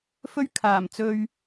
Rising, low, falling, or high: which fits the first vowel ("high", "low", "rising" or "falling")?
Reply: high